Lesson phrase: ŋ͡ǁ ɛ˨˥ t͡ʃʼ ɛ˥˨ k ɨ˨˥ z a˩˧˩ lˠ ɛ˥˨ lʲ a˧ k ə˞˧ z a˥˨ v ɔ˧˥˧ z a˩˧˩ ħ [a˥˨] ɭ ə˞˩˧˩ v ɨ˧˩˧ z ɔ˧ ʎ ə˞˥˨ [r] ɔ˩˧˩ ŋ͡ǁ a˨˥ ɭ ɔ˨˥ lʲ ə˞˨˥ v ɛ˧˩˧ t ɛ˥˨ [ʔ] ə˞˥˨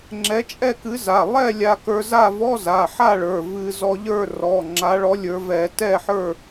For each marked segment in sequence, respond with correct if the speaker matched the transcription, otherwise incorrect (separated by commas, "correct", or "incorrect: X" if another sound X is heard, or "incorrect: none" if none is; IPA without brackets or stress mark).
correct, correct, incorrect: ħ